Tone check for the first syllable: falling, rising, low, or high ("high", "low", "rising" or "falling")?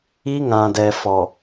high